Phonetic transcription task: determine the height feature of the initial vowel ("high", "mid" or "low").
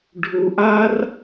high